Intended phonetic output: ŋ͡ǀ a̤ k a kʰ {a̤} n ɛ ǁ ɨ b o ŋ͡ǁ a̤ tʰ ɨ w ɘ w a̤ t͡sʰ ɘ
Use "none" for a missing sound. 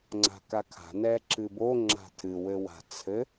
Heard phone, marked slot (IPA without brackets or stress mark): a̤